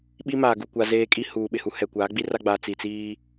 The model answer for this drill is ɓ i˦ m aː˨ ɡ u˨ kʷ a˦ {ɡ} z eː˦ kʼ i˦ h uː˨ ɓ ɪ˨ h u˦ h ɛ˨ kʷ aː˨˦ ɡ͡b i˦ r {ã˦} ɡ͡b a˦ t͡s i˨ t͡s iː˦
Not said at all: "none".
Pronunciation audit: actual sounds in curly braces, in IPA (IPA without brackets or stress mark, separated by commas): none, a˦